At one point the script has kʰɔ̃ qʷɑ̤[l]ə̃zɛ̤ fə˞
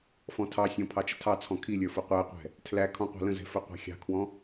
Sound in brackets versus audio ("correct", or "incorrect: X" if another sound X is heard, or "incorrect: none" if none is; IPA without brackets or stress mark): correct